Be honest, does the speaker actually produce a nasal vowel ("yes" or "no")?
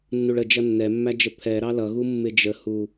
no